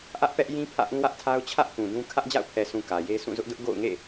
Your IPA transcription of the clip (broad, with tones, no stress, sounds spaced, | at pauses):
ʔ ä˦ ʔ p ɛ˦ ʔ j ĩ˦ pʰ ä̰˦˨ ʔ ũ˦ w ä˦ ʔ tʰ a˦ ʊ̯ t͡ɕʰ ä˦ ʔ k ũ˨ d ũ˦ kʰ ä˦ ʔ d͡ʑ a̰˦˨ ʊ̯ pʰ ɛ˨ sʰ ũ˨ k ä˨ j e˦ sʰ ũ˦˨ z ʊ˦ ʔ d ʊ˦ ʔ ɡ o̰˦˨ ʊ̯ ŋ ḛ˦˨